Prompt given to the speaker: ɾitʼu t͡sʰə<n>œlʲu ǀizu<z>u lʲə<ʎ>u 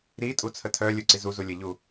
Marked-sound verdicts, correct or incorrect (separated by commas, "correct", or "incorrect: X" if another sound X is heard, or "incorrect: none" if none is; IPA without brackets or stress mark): incorrect: tʰ, correct, correct